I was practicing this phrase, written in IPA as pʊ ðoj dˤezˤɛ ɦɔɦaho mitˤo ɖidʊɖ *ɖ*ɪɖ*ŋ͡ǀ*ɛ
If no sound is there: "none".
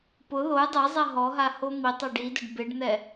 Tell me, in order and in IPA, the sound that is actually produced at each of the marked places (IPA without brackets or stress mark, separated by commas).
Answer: b, n̪